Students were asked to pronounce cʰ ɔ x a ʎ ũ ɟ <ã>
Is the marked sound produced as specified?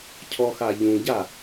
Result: no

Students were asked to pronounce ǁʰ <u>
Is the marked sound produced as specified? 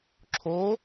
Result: no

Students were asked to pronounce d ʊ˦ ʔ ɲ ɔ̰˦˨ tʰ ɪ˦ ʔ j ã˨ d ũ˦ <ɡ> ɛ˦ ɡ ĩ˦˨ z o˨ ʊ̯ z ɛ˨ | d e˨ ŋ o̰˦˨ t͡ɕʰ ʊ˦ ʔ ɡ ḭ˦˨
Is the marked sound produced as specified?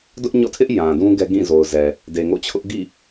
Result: yes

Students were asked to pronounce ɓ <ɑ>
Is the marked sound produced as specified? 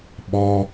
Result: no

